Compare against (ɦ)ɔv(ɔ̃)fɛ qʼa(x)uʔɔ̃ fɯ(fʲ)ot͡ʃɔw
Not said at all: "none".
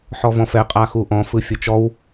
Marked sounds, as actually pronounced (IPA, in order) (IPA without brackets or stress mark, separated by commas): ħ, ɔ̃, x, fʲ